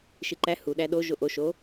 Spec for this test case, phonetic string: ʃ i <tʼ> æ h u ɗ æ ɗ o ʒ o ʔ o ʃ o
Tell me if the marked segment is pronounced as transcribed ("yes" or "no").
no